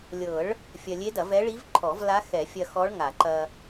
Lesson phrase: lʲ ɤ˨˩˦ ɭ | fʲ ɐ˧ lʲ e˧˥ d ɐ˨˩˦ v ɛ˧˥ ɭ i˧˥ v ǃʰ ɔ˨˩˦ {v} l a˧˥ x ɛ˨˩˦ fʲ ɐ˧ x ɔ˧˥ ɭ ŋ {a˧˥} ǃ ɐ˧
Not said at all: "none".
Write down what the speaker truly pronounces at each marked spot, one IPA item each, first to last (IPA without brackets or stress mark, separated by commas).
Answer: v, a˨˩˦